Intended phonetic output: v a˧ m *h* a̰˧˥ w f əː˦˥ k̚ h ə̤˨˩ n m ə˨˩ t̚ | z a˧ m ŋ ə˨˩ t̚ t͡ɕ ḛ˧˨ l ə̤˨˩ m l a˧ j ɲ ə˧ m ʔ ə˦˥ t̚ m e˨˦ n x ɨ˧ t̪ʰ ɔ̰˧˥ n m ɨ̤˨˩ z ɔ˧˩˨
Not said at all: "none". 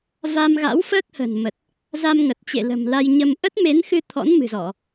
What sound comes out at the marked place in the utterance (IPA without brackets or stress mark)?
ɣ